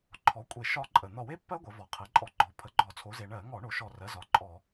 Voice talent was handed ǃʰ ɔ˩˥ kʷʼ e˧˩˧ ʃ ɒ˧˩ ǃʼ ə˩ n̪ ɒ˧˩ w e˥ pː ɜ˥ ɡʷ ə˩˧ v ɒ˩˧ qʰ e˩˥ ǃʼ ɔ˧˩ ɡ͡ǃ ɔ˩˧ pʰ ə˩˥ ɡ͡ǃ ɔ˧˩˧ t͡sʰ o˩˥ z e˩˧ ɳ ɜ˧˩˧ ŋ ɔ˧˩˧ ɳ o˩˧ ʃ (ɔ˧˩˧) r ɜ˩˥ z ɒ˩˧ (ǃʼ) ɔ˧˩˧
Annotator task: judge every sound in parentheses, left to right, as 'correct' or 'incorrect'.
incorrect, correct

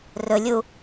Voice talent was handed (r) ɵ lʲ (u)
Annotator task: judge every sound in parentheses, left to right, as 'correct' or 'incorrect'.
correct, correct

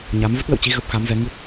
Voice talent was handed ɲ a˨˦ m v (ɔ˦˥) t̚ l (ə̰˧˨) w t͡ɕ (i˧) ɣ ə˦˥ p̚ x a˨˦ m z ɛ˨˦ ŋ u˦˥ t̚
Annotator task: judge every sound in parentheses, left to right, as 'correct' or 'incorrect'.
incorrect, correct, correct

